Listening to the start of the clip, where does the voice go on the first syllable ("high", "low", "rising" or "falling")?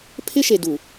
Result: high